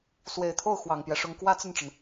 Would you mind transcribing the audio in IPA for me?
s w e˨˩ ɪ̯ t̪ʰ o˥˩ ʊ̯ x w ɑ˨˩ ŋ p j ɛ˦ ʂ ʊ˧˥ ŋ k w ä˥ t͡s ə˥˩ n ʈ͡ʂ ə˩ n

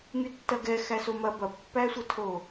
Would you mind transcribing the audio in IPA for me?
ŋ y tː ɐ ɡ ɛ x æ s o m ɐ b ɐ pː æ sʷ ə tʰ o

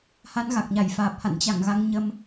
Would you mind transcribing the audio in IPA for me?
h a˨˦ n ɣ a˨˩ k̚ ɲ a˧˩ j f aː˨˩ p̚ h a̰˧˨ n t͡ɕ a˧˩ ŋ ɣ a˧ ŋ ɲ ə˧ m

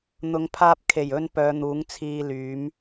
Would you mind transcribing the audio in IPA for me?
n̪ ʊ˨˧ ŋ pʰ aː˧ p̚ kʰ e˨˩ j ɵ˧ n p œː˨˧ n̪ uː˨˥ ŋ t͡sʰ iː˧ l yː˨˥ m

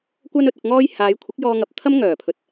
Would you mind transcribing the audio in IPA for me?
kʷ ɐ˧ n ɵ˨ t̚ ʊ˨ k̚ ŋ ɔː˧ j h aː˨˧ j kʷʰ ɪ˨˥ k̚ j ɔː˧ ŋ ɐ˨ p̚ t̪ʰ ɐ˥ m ŋ œː˨˩ pʰ ɵ˨˥ t̚

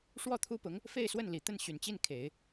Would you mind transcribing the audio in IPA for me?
ʂ w ɔ˥˩ t̪ʰ u˥ p ʊ˧˥ ŋ | f e˥˧ ɪ̯ s w ə˥˩ n l i˨˩ t̪ ə˥˩ n ɕ y˨˩ n t͡ɕ i˥˩ n kʰ e˨˩˦ ɪ̯

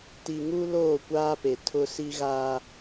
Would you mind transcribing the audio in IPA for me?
t i˨ ŋ u˦ l oː˦˨ kʷ aː˦ p e˨ tʰ ʊ˦ s i˦ ɣ aː˦

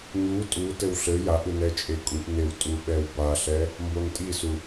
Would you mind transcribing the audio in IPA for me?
ɲ u tʼ u t ɘ w ɬ ɘ j a ʔ ɯ n ɛ t͡ʃʼ e kʼ u ʔ n e w tʼ u ɓ ɛ w b a ɬ ɛ | m b o n tʼ i s u

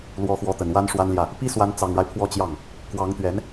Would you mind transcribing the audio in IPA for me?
l w ɔ˧˥ x w ɔ˧˥ t̪ ə˨˩ n w a˥ n ʂ w a˥ n l j ä˥˩ | p i˥ s w a˧˥ n t͡s ɑ˨˩ ŋ ɻ a˦ ɪ̯ pʰ w ɔ˥˧ t͡ɕ j ɑ˥˩ ŋ | k w ɑ˧˥ ŋ t̪ ɥ ɛ˧˥ n

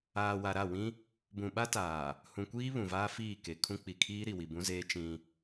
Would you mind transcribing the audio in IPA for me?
aː˨ w a˨ ɾ a˦˨ w ĩ˦ | b ũ˨ ɓ a˦ t aː˨ | h ũ˨ kʷ iː˦ β ũ˨ v aː˦ f iː˦˨ k e˨ kʰ ũ˦ k͡p i˨ kʰ iː˦ ɾ i˨ w i˨ b ũ˦ z eː˦ t͡ʃ ĩ˦

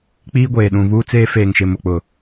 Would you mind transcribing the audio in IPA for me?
k͡p iː˦ ɡʷ eː˨ ɗ ũ˨ β uː˦ t͡s eː˦ f eː˨ ŋ ʃ ɪ˨ m ʊ˨ k͡p ʊ˨

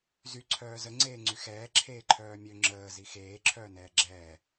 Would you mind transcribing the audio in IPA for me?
z y ǀʰ œː z ə ŋ͡ǀ eː ŋ͡ǀ y x ɛː ǁʰ eː ǃʰ œː mʲ ø ŋ͡ǁ əː z i x eː ǁʰ œː n ɛː ɡ͡ǁ ɛː

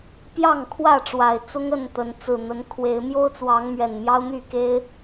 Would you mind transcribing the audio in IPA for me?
p j ɑ˥˨ ŋ kʰ w ä˥˨ ʈ͡ʂ w a˨˩ ɪ̯ t͡s ʊ˦ ŋ ə˥˨ n t̪ ə˨˦ n t͡s ɹ̩˨˩ n̪ ə˨˦ n kʰ w e˨˦ ɪ̯ m j o˦ ʊ̯ t͡s w ɑ˨˦ ŋ m ɥ ɛ˨˩ n m j ɑ˦ ʊ̯ n̪ y˥˨ k e˦ ɪ̯

